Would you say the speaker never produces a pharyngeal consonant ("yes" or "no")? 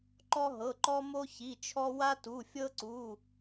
yes